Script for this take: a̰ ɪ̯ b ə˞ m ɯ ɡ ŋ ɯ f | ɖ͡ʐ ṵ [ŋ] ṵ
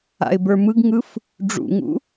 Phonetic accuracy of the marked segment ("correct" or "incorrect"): correct